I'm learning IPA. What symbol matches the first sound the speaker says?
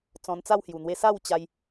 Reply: t͡s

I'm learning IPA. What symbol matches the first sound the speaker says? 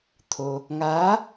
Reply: t̪ʰ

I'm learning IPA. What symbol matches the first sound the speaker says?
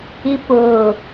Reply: i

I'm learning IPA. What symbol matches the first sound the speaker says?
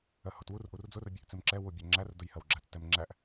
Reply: ɜ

